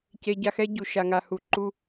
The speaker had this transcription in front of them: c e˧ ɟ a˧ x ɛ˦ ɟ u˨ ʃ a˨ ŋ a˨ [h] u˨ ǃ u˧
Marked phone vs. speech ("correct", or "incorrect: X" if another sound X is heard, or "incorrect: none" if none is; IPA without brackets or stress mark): correct